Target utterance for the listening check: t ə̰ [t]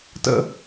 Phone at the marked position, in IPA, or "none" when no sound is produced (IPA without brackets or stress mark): none